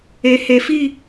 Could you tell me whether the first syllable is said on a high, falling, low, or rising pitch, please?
low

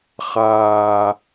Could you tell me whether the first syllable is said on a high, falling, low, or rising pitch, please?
low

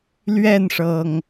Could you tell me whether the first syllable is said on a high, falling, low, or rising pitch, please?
falling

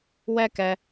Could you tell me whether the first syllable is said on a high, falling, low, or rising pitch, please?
high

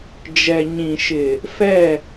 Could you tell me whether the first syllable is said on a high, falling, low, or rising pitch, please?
low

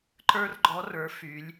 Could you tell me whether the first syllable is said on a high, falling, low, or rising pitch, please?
high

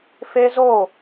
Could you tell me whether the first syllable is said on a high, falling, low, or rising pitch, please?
high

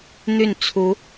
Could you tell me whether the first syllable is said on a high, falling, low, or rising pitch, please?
falling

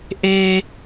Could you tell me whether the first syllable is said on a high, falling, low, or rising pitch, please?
high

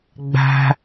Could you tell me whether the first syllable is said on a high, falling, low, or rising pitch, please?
high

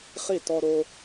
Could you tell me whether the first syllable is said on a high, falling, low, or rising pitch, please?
falling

